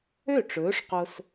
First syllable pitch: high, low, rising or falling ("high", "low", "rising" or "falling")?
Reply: falling